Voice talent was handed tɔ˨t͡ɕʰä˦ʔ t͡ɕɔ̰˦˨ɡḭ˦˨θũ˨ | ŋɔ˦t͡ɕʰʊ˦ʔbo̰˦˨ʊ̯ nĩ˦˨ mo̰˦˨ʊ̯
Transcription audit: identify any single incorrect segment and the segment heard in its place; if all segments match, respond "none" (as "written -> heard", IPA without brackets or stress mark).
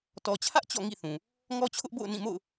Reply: ɡ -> ŋ